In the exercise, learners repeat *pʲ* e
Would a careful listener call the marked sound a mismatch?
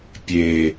no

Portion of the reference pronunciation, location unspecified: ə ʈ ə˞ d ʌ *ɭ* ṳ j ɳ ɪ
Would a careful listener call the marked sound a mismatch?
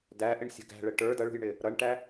no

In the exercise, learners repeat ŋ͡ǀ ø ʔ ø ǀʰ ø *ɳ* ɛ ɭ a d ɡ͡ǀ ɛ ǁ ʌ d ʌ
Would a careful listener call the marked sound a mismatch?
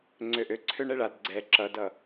no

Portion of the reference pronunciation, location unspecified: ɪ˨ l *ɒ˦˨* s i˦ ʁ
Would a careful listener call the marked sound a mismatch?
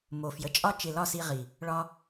no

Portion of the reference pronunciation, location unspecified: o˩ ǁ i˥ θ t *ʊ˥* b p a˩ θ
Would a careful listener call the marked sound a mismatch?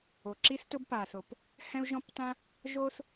no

